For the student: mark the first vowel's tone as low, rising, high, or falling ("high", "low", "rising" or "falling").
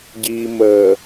low